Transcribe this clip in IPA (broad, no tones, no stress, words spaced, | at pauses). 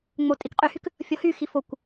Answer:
ŋ͡motʼikqʼyhyk | fʲɔhyxi fokʷ